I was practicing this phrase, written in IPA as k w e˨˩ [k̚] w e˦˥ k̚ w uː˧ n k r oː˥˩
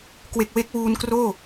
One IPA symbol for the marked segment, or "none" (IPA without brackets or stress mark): k̚